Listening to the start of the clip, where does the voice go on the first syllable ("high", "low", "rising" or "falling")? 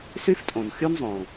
high